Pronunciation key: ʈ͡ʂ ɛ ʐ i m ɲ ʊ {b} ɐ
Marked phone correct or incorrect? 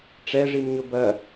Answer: correct